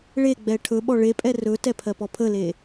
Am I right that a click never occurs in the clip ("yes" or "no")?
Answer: yes